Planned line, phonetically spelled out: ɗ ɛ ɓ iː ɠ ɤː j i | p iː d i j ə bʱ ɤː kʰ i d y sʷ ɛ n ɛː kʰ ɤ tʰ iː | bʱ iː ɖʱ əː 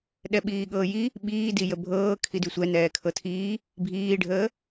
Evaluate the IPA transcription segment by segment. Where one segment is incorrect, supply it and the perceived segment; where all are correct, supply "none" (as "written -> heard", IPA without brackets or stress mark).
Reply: p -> ɓ